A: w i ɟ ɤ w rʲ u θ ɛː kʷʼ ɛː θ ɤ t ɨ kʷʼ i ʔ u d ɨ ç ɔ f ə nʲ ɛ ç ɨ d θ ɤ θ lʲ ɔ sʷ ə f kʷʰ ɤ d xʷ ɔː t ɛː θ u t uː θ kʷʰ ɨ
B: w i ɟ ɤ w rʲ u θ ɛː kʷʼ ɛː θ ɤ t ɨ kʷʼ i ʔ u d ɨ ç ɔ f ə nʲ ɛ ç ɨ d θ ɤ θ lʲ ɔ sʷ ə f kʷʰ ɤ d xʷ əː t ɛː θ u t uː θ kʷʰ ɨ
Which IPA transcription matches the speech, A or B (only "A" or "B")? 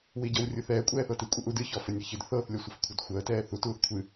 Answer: B